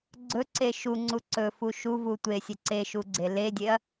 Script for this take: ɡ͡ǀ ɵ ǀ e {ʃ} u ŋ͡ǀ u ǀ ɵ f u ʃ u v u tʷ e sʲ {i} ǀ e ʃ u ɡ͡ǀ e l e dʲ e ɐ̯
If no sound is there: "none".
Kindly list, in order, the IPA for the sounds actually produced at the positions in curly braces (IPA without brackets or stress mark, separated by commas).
ʃ, e